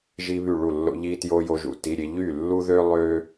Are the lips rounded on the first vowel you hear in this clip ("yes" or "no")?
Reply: no